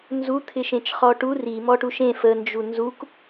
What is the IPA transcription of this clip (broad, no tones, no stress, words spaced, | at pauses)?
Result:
nzut̪ʰɪʃẽt͡ʃ χɔʈu ri mɔʈuʃẽ fənd͡ʒu nzuk